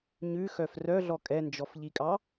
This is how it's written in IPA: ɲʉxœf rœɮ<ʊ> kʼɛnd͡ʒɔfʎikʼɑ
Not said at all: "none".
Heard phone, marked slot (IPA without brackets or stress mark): ɔ